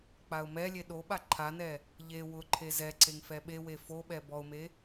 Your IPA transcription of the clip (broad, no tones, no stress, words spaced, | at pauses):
k͡paʊ̯mɛlʲe ɗoɓa ǃʰanɛ | ʎe wʊǃʰe zɛǀeŋ fɛɓewe foɓɛ bɔʊ̯me